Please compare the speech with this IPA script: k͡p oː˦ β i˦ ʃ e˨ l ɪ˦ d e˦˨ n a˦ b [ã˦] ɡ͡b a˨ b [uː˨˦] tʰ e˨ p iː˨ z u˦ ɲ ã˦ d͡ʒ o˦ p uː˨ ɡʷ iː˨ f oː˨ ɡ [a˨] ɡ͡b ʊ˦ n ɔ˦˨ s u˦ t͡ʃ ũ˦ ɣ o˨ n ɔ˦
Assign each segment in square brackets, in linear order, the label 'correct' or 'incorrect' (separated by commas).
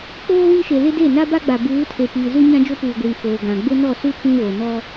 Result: incorrect, correct, incorrect